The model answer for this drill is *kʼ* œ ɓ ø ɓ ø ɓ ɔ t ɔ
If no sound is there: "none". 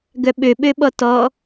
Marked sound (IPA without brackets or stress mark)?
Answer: ɡ